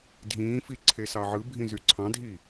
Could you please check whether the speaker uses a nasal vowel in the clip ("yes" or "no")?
yes